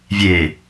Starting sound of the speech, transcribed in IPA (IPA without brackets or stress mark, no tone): vʲ